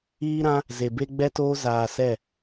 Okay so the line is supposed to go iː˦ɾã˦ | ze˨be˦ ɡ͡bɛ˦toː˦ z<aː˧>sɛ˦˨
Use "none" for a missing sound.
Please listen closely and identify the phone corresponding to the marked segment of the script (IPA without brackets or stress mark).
aː˧